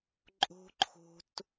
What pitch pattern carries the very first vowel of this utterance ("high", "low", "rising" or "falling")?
high